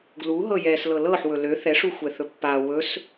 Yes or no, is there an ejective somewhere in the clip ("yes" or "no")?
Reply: no